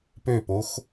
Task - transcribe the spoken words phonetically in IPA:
pøpox

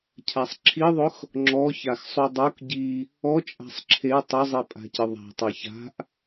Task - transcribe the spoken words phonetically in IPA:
cʰasˤǁʰiðˤʊx | ŋ͡ǁɔçaxsˤu dˤok ɟi | ɔ t͡ʃʼa̤sˤǁʰe tˤʊzˤi pʼa̤cɪðˤa̤ tˤɛça̤ʔ

